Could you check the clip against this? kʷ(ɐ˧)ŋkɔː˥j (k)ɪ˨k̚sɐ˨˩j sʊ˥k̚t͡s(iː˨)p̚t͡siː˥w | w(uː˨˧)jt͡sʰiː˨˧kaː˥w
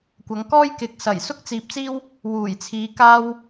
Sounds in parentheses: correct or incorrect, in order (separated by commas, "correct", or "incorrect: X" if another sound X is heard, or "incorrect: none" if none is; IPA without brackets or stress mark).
incorrect: ɐ˨˧, correct, correct, incorrect: uː˨˩